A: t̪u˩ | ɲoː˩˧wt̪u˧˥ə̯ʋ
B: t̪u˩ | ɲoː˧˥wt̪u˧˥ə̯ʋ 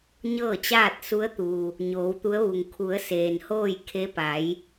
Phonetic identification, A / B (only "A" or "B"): A